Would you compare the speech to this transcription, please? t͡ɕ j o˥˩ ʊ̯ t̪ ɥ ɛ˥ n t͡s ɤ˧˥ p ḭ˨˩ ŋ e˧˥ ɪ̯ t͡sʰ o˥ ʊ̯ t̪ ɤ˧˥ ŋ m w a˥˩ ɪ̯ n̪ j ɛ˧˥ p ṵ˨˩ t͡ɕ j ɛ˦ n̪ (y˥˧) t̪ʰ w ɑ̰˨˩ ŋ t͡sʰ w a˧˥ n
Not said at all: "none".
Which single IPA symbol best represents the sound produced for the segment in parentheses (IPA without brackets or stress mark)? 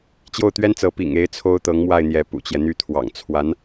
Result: y˥